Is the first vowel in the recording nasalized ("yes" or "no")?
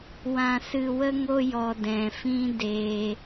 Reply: yes